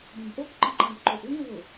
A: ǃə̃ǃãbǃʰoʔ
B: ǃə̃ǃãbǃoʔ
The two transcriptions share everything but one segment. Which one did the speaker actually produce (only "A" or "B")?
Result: B